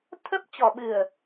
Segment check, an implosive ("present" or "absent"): present